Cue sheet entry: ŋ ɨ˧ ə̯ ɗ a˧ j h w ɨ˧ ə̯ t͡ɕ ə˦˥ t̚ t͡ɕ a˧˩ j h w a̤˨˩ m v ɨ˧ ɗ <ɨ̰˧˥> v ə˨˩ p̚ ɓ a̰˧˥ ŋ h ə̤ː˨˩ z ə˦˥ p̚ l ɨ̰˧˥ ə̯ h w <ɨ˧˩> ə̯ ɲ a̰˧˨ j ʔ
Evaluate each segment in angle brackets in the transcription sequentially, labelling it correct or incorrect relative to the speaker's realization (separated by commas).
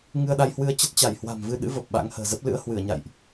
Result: correct, correct